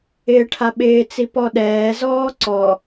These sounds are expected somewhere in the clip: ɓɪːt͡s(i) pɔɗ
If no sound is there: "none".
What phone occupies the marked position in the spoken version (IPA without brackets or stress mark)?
i